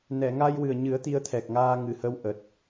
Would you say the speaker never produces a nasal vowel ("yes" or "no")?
yes